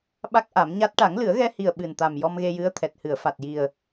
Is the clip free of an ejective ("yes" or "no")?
yes